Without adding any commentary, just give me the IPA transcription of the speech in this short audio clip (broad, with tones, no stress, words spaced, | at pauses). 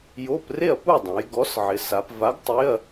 jo˧˥˧pre˥˨ɐ̯pu˥˨dˤõ˩˧j ɡɔ˨˥sʕɪ˩˧sa˩˧p va˨˥ɡ tˤɪ˧˥˧ɐ̯